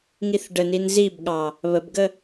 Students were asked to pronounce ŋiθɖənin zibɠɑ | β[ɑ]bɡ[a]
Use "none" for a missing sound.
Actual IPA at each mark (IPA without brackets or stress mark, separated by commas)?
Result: ə, ə